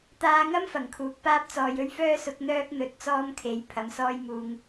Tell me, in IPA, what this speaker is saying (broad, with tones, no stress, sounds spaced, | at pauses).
t̪ aː˧ ŋ ɐ˥ m f ɐ˨˩ ŋ kʰ uː˨˥ k̚ p aː˥ p̚ t͡s ɔː˨˧ j ɵ˥ ɥ f œː˥ s ʊ˨˥ k̚ n̪ œː˥ k̚ n̪ ɵ˨˥ t̚ t͡s ɔː˥ m kʰ e˨˥ j pʰ ɐ˨˥ m s ɔː˥ j m uː˧ ŋ